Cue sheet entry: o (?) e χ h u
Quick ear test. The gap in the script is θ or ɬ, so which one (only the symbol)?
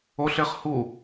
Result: ɬ